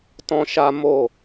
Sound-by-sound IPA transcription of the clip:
t ɔ̃˧ ʃ a˧ m o˦˨

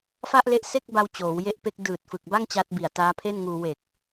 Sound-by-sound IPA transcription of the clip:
f a˥˩ ʔ l e˦˥ ʔ s e˥˩ k̚ b a˧ w t͡ɕ oː˩˦ w j e˦˥ ʔ p e˦˥ k̚ d ɯː˨˩ t̚ f ɯ˨˩ k̚ b a˥˩ ŋ t͡ɕ a˦˥ t̚ b i˨˩ a̯ t aː˦˥ pʰ e˥˩ n ŋ uː˧ w e˨˩ k̚

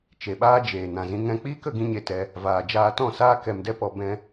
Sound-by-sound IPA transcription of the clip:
t͡ʃ e˨ ɓ aː˧ d͡ʒ eː˨ n ã˨ z ĩ˧ ŋ ɛ̃˧ k͡p iː˦ k ə˧ ɡ ĩ˦ ɲ e˧ t ɛ˧ | v aː˨ d͡ʒ aː˧ t ɔ̃˦˨ s aː˦ k ɛ˧ m d ɛ˦ p ɔ˧ b ɛ̃˧

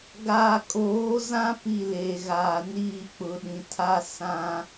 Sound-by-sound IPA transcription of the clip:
ɡ aː˨ kʼ oː˨˦ z ã˦ p i˦˨ l eː˨ ɣ aː˨ n iː˦˨ k͡p ʊ˨ ɗ ĩ˨ tʰ a˦ s ã˦

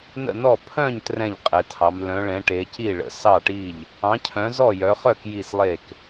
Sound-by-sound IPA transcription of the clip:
n ə̰˥˨ n ɔ˥˨ pʰ œ̃˥˨ ɲ t r ɛ̃˥˨ ʎ qʼ ɛ˨˦ tʰ ɑ˨˦ m l œ̃˨˦ ɭ ɛ̃˨˦ ʈ e˨˦ c i˥˨ ɭ ə̰˨˦ s ɑ˥˨ ʈ i˥˨ ʎ | ɑ̃˨˦ cʰ œ̃˨˦ z ɔ˥˨ j œ˨˦ χ œ˥˨ k j i˥˨ s lˠ e˥˨ k

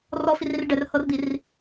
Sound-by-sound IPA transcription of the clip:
r ɔ f i r i r ɖ ɛ r h ɤ r d̪ i r

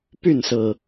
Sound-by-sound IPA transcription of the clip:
p y˥˨ n s ɹ̩˨˩

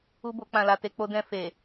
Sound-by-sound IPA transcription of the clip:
u˦ b o˧ k͡p ã˨ l a˨ t e˧ k͡p o˧ d ɛ̃˧ f e˨

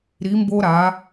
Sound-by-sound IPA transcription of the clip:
ɾ i˧˥ m b o˥ ɾ a˧˥

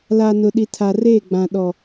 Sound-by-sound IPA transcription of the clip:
l a˨ n ʊ˨ ɗ i˨ tʰ a˨ r eː˦˨ ɡ͡b ã˨ ɗ ɔ˨

